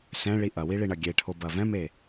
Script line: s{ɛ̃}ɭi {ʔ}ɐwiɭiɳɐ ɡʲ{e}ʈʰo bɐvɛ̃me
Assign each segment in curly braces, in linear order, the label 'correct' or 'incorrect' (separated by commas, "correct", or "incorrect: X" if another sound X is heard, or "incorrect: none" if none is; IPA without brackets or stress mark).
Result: correct, correct, correct